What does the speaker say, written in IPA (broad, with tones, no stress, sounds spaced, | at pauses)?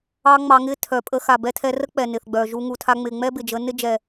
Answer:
ɑ˦ ŋ͡m ɑ˧ ŋ ɪ˦ tʰ œ˨ pʼ ə˧ x a˨ b ɛ˧ tʰ ɛ˧ r ə˦ k͡p ɛ˨ n ɪ˨ θ ɡ͡b œ˨ ʒ u˧ ŋ u˨ tʰ a˧ ŋ͡m ɪ˨ ŋ͡m ɛ˦ b ɪ˨ d͡ʒ ə˨˦ n ɪ˦ d͡ʒ ɛ˨